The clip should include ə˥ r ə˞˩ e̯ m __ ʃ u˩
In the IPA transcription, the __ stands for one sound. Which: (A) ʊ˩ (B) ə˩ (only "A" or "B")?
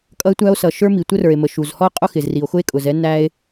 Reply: B